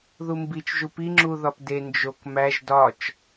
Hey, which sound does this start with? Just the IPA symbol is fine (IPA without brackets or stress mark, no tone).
ð